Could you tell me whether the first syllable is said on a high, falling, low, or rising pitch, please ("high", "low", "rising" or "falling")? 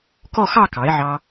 falling